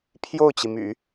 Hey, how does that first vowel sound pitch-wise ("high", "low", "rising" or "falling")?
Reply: falling